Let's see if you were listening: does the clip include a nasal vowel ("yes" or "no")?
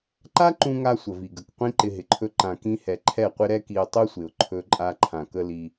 yes